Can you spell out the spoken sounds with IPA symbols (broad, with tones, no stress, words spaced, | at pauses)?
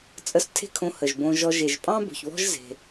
t͡sʼə˧stʰe̤˦˨kʰõ˧ hə˨ʒbõ˧ʒɔ˧ ʒe˨ʒpʼɑ̃˦bo̤˨çβɔ̤˦ʒ ze̤˧